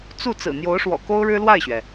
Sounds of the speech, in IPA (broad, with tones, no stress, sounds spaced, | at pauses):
t͡s u˥˩ t͡s ɹ̩˨˩ n̪ j o˧˥ ʊ̯ ʂ w ɔ̰˨˩ k o˥ ʊ̯ ɻ ɻ̩˥ l w a˥˩ ɪ̯ ɕ ɥ ɛ˩